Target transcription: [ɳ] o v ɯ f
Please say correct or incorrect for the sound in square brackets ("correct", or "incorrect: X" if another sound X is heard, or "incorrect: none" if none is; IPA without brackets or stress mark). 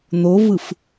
incorrect: n̪